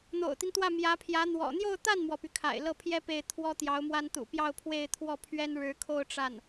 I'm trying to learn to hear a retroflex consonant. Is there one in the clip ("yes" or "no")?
yes